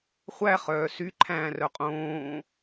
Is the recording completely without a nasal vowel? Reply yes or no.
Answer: no